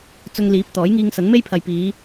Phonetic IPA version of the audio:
t͡s ʊ˧ ŋ l iː˨˥ p̚ t̪ ɔː˨˥ j ŋ iː˧ ŋ s ɐ˨˥ n m e˥ j pʰ ɐ˨ j p iː˨˧

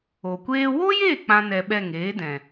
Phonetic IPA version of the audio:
o˨ kʷ eː˦ w o˦ j e˦˨ k͡p ã˦ n ɛ˧ ɓ ɛ˦˨ ŋ eː˨˦ d ɛ̃˨

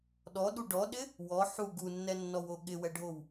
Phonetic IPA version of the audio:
ɗ ɔ ɗ u ɖ ɔ ɗ ɪ | w ɔ ħ u ɡ u nː ɛ nː ɔ w o ɠ ɪ w ɛ ɖʱ o w

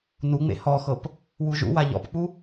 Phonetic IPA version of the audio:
n u ŋ͡m ḛ h ɔ x ɤ p | w u ʒ ṵ w a ʎ ɔ̰ p k͡p u

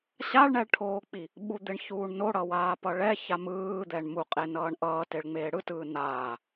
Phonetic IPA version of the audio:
ɕ a ɭ ɳ ɛ ɭ ʈʰ oː k͡p i | ɓ u d̪ e ɳ ç uː ɳ n o ɽ ʌ w aː p ʌ ɭ ɛ ç a m ɯː d̪ ɛ ɳ m u qʼ e n ʌː ɳ ʔ ʌː t e ɭ ŋ͡m eː ɽ ɯ t ɯː n aː

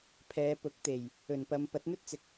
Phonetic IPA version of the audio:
pʰ ɛː˨˧ p ʊ˨˥ k̚ t̪ e˨˩ j | ɵ˨˩ n p ɐ˨˧ m p ɐ˨˥ t̚ n̪ ɵ˥ t̚ t͡s ɪ˨ k̚

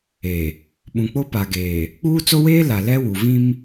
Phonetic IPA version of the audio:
e˨ | ɓ ũ˨ k͡p o˦ p a˨ ɡ eː˨ | k͡p uː˦ t͡s o˦ w eː˦ l a˨ l ɛ˦ w u˨ v ĩ˦ m

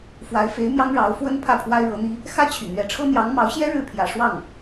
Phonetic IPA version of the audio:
f w a˧˥ ɪ̯ f e˧˥ ɪ̯ m j ɑ˥ ŋ ɻ ɑ˧˥ ʊ̯ f w ə˥ n pʰ ä˥˩ pʰ w a˥ ɪ̯ ɻ ɤ˧˥ n̪ i˥ | x ä˥ t͡ɕʰ y̰˨˩ n̪ ɥ ɛ˧˥ ʈ͡ʂʰ ɤ˥ n̪ j ɑ˧˥ ŋ m ɑ˧˥ ʊ̯ ɕ j ɛ˥ ɻ ɻ̩˥˩ pʰ j ä̰˨˩ ʂ w ɑ˥˩ ŋ

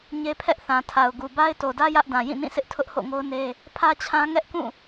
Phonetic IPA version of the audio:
ɲ e˦ pʰ ɛ˦ ʔ θ ã˨ tʰ a˨ ʊ̯ ɡ u˨ b a˦ ɪ̯ t o˨ d ä˦ j ä˦ ʔ d ã˨ j ĩ˦˨ n ĩ˦˨ sʰ ɪ˦ ʔ tʰ ʊ˦ ʔ h o̰˦˨ ŋ o˦ ʊ̯ n e˦ | pʰ ä˦ t͡ɕʰ ã˦ ŋ ɛ˦ ʔ k ũ˦˨

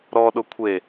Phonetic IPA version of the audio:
ɾ ɔ ɗ ʊ kʷʰ e

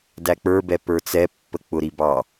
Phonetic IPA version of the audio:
d æ k͡p ə˞ b ɛ p ə˞ t͡s ɛ pː ə k͡p ʊ ɾ i b ɑ

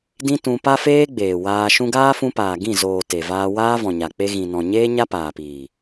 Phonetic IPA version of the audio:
d ĩ˦ t ũ˧ p a˦ f eː˦ ɡ͡b eː˨ w aː˧ ʃ ũ˧ ɡ aː˦ f ũ˧ p aː˨ ɡ ĩ˦˨ z oː˨ t e˨ v aː˧ w aː˦ v ɔ̃˨ ɲ a˨ k͡p e˧ ɣ ĩ˨ n ɔ̃˨ ɲ eː˦ ɲ a˦ p aː˨ p iː˨

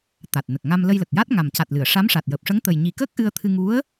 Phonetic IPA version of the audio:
t̪ a˨˩ t̚ n ə˨˩ k̚ ŋ a˧ m l ə˧ j l ə˨˩ k̚ j a˦˥ t̚ ŋ a˨˩ m c a˨˩ t̚ l ɨ˨˩˨ ə̯ ʂ a˧˥ m ʂ a˨˩ t̚ j əː˨˩ p̚ ʂ ə˧˥ ŋ t̪ ə˨˩ j ɲ i˨˩ k əː˦˥ k̚ ʔ ɨ˧ ə̯ t̪ʰ ɨ˧ ŋ u˧˥ ə̯

